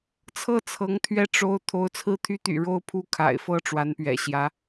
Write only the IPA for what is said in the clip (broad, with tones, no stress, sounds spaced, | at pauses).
t͡sʰ ɤ˥˩ t͡sʰ ɤ˧˥ ŋ t̪ʰ ɥ ɛ˥˩ ʈ͡ʂ o˥ ʊ̯ t̪ʰ o˧˥ ʊ̯ t͡sʰ ɹ̩˥˩ t̪ʰ y˥ t̪ y̰˨˩ ɻ o˥˧ ʊ̯ pʰ u˥˩ kʰ a̰˨˩ ɪ̯ f ɤ˥˩ ʈ͡ʂ w a˧˥ n p ɥ ɛ̰˨˩ ɕ j ä˧˥